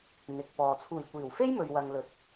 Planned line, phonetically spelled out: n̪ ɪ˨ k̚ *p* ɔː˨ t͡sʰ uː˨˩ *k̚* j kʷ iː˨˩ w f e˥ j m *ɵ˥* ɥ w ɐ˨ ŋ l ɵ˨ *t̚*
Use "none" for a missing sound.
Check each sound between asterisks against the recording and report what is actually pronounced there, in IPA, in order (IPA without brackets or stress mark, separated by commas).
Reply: p, none, ɵ˨, t̚